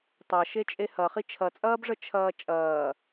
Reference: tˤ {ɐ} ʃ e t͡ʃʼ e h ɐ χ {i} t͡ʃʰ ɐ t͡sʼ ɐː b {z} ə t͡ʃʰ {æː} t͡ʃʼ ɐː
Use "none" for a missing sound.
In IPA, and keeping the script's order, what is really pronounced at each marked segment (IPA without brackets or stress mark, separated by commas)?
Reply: ɐ, i, ʐ, ɐː